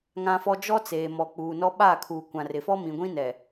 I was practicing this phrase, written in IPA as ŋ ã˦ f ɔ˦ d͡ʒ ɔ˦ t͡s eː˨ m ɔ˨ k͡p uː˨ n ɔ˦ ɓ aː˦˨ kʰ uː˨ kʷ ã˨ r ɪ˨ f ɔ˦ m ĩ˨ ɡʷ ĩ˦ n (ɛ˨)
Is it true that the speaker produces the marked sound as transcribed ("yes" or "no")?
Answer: yes